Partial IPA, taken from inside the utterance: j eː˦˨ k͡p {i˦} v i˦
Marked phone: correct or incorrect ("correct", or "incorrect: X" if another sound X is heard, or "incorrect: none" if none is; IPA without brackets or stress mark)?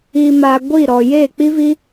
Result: correct